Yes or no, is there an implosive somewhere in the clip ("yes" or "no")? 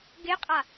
no